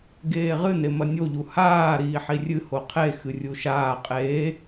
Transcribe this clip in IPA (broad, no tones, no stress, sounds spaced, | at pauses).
ɡ eː ʁ ɨ n e m ɐ nʲ o ʎ u h aː ɾ iː ħ i rʲ ɨ h o qʰ e x ɨ rʲ u ʃ aː qʼ eː